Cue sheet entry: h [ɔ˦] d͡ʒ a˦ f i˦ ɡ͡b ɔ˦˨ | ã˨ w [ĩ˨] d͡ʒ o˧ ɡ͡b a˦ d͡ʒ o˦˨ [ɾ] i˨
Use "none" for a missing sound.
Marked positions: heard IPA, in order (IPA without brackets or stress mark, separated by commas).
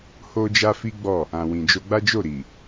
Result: o˦, ĩ˨, ɾ